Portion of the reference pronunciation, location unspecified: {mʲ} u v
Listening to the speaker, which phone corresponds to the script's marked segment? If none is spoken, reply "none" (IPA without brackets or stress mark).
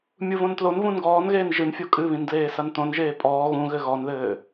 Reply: mʲ